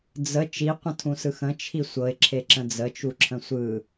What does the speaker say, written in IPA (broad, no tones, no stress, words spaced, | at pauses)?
d͡zə t͡ʃiqʷə̃tʰũsɯx ə̃t͡ʃʰi sʷɤɪ̯ǁʰeǁə̃ d͡zət͡ʃuǁʰə̃ sʷɯ